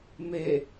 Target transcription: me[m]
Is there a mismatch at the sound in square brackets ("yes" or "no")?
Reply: yes